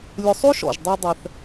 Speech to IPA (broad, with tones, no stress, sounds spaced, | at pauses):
lʲ ʊ˨ sˤ o˦ ʃ ɔ̰˩ ʒ dˤ ɛ˨ dˤ ɛ˩ θ